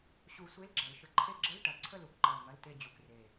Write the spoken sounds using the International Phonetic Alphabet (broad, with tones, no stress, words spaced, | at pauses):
ɕu˨˩˦ sʷe˧˥˧lɡ͡ǁɐ˨˩˦l ʃə˨˩ ǃʰe˦˨ɡ͡ǁə˧˥˧l ʈɐ˨˩˦ ǀʰə˦˨lu˨˩kǃɐ˨˩l ŋɐ˧˥˧lte˦˨ d͡ʑu˨˩kre˨˩